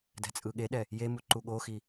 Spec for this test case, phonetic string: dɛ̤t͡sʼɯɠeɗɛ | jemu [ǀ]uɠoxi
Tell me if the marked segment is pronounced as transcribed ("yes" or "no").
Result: no